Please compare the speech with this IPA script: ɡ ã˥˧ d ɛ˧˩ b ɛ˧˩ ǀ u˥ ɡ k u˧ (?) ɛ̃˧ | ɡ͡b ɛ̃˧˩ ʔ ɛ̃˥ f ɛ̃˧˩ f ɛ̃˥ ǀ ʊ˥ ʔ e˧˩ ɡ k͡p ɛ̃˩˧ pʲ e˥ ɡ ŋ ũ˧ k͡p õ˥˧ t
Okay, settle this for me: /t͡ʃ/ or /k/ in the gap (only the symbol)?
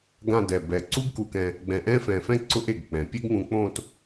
k